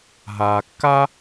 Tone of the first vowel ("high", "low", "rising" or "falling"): low